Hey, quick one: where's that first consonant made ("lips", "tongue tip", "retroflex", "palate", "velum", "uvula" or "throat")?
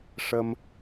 retroflex